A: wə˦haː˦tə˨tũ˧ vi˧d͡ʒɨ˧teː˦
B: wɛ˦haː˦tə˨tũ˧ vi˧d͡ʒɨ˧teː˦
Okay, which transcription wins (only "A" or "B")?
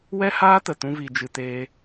B